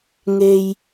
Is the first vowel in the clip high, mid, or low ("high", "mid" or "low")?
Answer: mid